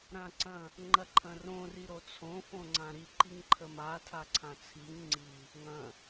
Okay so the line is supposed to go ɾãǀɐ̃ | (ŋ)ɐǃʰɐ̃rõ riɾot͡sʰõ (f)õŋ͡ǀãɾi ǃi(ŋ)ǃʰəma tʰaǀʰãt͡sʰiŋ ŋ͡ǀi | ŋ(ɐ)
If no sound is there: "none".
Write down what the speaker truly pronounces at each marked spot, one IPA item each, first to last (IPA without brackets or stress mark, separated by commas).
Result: ŋ͡ǃ, f, ŋ, ɐ̃